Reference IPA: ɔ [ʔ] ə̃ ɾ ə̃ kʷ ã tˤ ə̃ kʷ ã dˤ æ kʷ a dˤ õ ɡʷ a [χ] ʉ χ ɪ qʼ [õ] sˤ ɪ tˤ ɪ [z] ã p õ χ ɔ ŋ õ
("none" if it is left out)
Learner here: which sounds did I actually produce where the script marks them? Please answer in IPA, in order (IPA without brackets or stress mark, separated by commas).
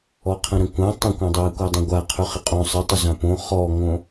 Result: qʰ, qʰ, õ, z